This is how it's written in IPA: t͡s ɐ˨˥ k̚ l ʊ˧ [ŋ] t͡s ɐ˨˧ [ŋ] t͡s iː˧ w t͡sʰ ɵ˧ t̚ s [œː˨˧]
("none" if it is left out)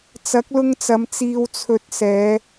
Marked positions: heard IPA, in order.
ŋ, m, ɛː˨˧

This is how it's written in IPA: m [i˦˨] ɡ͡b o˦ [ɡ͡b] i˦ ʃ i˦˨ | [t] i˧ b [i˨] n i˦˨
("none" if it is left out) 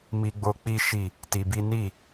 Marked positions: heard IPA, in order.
i˦, k͡p, t, i˦

